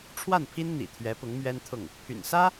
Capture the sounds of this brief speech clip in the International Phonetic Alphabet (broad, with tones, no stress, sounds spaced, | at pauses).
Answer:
ʈ͡ʂʰ w a˥˩ n pʰ i˥ n n̪ ḭ˨˩ t̪ʰ ɥ ɛ˧˥ p ʊ˧˥ ŋ m ɥ ɛ˥ n t̪ʰ ʊ˥˩ ŋ | pʰ y̰˨˩ n s ä˥